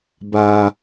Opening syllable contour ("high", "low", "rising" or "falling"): high